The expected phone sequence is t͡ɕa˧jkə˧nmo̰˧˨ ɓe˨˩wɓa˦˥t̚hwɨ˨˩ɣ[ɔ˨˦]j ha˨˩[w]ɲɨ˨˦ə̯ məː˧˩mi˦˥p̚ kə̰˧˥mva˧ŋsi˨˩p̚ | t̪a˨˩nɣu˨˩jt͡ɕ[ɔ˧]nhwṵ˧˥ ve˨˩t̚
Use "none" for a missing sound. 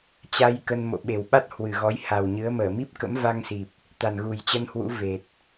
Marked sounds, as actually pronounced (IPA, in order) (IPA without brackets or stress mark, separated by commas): ɔ˨˦, w, ə˧